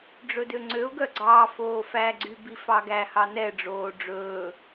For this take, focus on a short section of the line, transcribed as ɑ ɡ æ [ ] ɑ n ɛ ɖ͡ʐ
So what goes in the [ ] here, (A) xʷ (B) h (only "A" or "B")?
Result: B